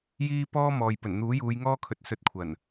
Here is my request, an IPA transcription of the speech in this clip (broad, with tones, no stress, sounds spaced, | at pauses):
j iː˥ p ɔː˥ m ɔː˨ j p ɵ˨˩ n n̪ uː˨˥ j uː˨˧ j ŋ ɔː˥ kʰ ɵ˨˥ t̚ s ɵ˧ t̚ kʷʰ ɐ˨˩ n